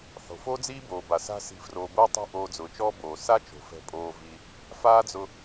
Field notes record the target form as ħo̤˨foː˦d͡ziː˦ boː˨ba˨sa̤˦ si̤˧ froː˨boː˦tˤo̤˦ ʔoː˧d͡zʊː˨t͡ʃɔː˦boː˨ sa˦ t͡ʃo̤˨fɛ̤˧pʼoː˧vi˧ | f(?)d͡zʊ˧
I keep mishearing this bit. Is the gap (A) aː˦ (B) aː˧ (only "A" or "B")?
A